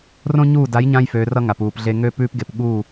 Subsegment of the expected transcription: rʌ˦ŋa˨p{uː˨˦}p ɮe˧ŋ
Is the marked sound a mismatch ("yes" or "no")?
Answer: yes